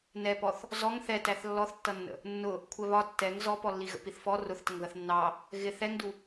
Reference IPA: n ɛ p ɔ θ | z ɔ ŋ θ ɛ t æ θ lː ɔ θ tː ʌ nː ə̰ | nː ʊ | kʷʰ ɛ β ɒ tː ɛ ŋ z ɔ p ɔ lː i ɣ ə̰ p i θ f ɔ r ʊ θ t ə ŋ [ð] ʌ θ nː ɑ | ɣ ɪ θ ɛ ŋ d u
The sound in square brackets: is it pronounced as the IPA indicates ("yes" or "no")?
yes